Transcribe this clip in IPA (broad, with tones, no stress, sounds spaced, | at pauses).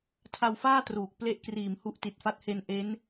tʰ a˧ w f aː˥˩ t r uː˨˩ k̚ p l e˦˥ ʔ k r iː˨˩ m h u˦˥ ʔ t i˨˩ t̚ f a˦˥ t̚ h e˧ n ʔ e˦˥ n